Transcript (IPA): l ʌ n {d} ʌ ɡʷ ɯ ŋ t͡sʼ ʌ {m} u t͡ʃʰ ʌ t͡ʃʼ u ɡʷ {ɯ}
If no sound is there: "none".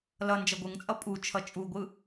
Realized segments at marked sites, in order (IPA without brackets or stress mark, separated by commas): d͡ʒ, pʼ, ɯ